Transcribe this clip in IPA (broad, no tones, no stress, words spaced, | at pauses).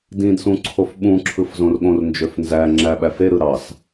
dĩdsũ ǀʰofɓũǁʰɯf zõrɠõrnd͡ʒøf nzæ ŋ͡ǁæɓæfeɾɯ ɾɑs